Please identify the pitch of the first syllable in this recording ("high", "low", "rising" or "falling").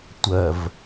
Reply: low